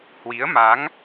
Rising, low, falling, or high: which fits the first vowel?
rising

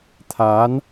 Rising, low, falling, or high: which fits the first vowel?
rising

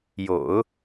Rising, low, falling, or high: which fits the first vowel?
low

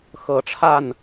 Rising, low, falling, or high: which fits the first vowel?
low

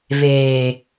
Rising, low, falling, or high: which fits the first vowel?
low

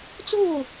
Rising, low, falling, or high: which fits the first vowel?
falling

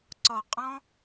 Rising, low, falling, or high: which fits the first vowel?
low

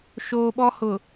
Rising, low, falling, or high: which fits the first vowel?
low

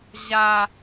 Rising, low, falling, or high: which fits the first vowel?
low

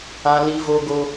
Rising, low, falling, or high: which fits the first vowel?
high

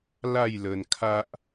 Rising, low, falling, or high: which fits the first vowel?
falling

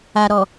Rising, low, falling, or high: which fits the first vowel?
low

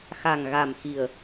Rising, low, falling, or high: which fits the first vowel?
low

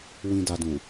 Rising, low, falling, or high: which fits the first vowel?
low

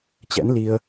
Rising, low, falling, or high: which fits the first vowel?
rising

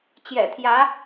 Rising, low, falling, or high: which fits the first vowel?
low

